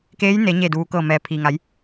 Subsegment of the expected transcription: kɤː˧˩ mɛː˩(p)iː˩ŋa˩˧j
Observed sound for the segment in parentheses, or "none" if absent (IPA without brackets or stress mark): pʰ